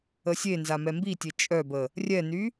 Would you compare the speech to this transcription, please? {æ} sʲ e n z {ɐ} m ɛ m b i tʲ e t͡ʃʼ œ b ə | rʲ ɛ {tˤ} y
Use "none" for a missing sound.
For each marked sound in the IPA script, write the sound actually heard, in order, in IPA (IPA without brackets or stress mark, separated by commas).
ə, a, n